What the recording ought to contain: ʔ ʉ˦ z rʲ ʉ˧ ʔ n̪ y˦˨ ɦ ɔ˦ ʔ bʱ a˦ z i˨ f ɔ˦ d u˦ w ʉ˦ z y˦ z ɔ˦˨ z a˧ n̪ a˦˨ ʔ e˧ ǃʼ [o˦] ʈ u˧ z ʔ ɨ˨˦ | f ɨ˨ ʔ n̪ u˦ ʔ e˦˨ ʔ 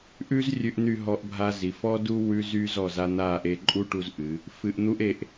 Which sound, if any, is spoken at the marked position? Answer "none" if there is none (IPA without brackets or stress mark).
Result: u˦